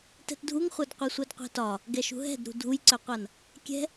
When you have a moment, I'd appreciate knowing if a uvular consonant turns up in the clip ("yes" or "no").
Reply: yes